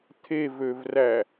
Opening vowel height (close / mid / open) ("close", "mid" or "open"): mid